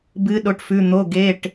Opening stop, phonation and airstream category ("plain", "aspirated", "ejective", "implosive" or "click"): plain